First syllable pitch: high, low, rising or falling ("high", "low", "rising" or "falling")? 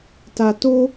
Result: low